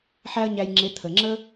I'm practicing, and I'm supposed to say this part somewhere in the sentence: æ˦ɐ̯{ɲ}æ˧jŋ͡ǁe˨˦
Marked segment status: correct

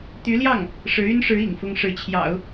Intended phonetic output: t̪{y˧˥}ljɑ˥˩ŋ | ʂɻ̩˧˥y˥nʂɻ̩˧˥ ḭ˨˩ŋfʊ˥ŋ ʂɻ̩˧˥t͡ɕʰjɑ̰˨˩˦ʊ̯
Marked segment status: correct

